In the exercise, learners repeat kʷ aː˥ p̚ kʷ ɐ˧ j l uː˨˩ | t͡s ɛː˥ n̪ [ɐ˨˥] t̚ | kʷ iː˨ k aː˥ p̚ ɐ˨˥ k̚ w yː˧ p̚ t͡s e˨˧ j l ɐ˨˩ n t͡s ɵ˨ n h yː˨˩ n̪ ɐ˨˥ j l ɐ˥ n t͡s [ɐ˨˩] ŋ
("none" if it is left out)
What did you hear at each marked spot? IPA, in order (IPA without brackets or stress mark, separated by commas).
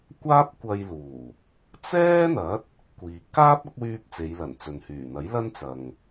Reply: ɐ˨˥, ɐ˨